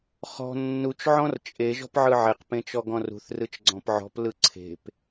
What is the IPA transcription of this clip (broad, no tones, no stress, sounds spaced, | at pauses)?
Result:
χ ɔ̤ nː u t͡ʃ ʕ ɔ̃ r t͡ʃʼ e ʒ ɔ̤ p ʕ ɯ ʕ e q p ẽ t͡ʃ ɔ ɡ ɔ̃ r ṳ θ r ɯ t͡ʃ ɡ͡ǀ ɔ̃ p ʕ ɔ̤ p l ɯ ǀʰ e̤ p